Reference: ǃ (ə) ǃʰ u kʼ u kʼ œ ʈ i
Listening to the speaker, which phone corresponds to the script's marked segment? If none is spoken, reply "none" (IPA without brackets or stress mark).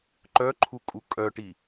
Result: œ